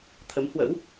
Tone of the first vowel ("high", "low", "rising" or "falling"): rising